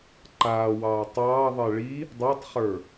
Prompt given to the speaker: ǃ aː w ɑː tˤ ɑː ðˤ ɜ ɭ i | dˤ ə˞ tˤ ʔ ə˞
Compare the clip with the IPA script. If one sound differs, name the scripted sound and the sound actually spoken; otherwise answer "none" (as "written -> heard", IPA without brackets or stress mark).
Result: ʔ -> χ